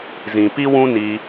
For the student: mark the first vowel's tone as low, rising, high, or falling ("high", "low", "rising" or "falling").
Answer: low